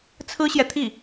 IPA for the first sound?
t͡sʰ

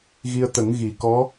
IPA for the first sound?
ɣ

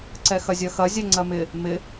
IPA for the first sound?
ǀ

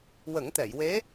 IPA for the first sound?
w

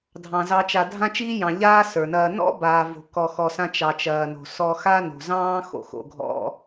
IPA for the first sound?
dʱ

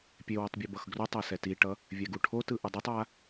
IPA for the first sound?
pʲ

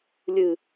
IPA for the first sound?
lʲ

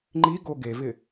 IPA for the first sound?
ŋ͡ǃ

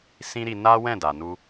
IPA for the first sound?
s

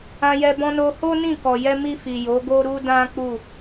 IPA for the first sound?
ã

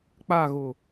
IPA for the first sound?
k͡p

